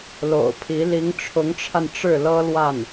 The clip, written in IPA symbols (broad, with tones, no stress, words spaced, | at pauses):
lo̰˨˩ʊ̯pʰi˧˥ li˧˥ŋʈ͡ʂʰʊ˧˥ŋʈ͡ʂʰa˧n ʈ͡ʂɻ̩˥˩lɤ˥lwa˥˩n